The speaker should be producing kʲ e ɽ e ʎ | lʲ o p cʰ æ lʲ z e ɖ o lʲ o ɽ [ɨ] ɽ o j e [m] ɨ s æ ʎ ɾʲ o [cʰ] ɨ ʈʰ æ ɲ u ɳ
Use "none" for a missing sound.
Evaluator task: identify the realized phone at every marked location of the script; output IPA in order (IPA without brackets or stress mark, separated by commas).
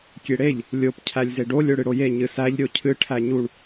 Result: ɨ, ɲ, cʰ